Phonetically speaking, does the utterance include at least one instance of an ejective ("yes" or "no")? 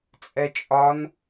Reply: yes